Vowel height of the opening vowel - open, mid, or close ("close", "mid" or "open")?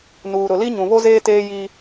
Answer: close